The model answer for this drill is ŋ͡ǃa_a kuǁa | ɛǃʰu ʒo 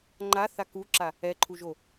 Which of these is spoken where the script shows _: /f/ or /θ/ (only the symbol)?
θ